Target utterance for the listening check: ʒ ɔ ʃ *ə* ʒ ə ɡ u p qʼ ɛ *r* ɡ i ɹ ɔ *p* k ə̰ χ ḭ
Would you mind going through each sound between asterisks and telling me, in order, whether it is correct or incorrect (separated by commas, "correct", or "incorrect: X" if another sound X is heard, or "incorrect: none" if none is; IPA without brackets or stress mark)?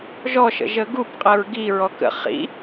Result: incorrect: ə̰, incorrect: ɹ, incorrect: none